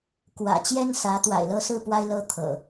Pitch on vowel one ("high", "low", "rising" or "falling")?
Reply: low